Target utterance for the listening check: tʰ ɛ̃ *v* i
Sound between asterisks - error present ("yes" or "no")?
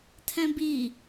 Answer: yes